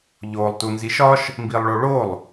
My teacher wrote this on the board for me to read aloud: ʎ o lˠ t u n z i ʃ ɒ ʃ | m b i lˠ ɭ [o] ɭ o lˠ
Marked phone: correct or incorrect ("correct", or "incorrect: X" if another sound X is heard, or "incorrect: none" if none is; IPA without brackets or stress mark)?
correct